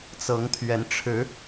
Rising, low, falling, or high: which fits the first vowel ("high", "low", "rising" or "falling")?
rising